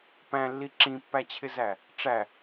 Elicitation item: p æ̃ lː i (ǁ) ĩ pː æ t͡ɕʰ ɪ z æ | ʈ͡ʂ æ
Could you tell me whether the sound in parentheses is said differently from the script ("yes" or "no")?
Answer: no